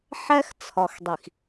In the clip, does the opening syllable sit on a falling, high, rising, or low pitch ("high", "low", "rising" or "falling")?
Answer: high